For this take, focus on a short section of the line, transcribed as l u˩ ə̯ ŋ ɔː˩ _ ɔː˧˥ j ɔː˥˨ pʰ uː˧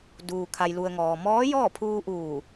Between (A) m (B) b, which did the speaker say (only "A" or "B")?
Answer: A